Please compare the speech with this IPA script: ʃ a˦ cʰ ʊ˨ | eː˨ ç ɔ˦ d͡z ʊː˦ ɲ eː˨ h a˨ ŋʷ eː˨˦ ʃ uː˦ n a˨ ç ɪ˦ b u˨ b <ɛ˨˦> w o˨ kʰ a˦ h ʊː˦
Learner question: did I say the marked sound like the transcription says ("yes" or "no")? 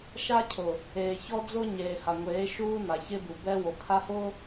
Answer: no